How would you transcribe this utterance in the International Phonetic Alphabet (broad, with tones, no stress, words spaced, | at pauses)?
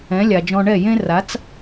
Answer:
ɛ̃˩˥lʲa˩d͡ʒɔ̃˧ ɳɛ˥˩jẽ˥ra˩˥t͡s